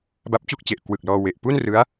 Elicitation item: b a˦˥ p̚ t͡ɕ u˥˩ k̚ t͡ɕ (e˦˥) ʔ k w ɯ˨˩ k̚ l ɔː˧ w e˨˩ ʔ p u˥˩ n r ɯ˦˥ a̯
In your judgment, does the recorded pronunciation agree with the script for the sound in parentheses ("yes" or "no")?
no